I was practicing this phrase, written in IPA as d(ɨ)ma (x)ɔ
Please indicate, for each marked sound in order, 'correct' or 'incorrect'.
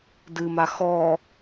correct, correct

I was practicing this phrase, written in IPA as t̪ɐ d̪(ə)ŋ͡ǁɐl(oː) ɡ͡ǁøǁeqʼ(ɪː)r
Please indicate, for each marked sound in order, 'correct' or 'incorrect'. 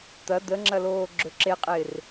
correct, correct, correct

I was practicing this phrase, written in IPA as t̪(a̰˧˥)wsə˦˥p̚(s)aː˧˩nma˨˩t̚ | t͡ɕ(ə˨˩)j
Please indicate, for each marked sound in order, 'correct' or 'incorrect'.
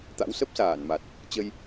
correct, correct, incorrect: ə˧

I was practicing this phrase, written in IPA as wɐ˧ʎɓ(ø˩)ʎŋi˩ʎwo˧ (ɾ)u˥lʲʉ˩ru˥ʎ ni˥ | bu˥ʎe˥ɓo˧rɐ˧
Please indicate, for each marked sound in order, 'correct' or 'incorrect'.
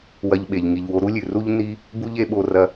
incorrect: e˩, correct

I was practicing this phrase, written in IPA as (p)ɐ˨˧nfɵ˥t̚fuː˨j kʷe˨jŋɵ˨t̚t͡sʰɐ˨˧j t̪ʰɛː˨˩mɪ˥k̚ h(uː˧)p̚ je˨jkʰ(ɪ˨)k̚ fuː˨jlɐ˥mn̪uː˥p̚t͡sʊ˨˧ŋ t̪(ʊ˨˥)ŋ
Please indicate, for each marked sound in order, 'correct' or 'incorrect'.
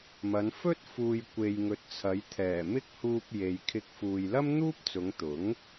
incorrect: m, correct, incorrect: ɪ˧, correct

